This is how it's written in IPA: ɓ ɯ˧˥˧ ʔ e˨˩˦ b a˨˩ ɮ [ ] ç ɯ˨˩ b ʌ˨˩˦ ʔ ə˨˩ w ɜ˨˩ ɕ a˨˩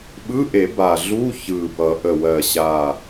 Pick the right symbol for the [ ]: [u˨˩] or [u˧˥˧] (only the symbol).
u˧˥˧